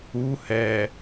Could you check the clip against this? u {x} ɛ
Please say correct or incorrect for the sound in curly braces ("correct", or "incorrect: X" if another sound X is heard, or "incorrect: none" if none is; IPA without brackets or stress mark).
incorrect: h